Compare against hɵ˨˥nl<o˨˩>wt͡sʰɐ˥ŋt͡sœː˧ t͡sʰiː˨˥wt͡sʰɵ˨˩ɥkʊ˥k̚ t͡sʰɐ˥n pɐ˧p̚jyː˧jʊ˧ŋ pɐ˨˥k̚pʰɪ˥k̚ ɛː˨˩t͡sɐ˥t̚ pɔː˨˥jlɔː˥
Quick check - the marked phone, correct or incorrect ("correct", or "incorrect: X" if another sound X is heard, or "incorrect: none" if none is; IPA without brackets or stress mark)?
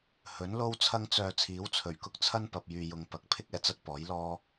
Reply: incorrect: o˥